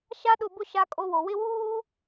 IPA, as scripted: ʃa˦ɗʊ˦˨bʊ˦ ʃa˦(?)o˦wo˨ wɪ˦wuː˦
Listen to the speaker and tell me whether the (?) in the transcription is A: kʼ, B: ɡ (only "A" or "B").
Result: A